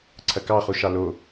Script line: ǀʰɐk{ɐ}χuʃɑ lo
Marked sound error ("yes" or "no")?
yes